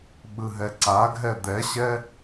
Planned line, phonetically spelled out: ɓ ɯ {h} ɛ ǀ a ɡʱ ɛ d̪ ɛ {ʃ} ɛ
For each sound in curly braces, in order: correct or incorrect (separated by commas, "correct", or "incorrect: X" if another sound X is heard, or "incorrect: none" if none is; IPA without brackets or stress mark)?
incorrect: ɦ, incorrect: ɕ